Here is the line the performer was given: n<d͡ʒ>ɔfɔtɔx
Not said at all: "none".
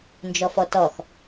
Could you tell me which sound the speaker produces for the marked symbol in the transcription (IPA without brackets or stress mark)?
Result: d͡ʒ